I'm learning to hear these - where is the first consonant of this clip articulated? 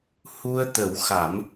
throat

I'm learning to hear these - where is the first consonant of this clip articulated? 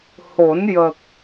throat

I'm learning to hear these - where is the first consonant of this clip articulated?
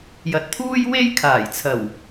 palate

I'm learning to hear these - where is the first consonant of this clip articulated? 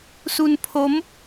tongue tip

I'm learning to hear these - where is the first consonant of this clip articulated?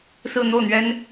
tongue tip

